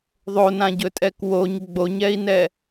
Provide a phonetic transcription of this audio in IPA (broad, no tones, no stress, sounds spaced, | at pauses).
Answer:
ðˤ o n ã ɟ ɵ tʼ ɛ k w o ɲ ɡ͡b o ɲ ɛ i̯ n ɛ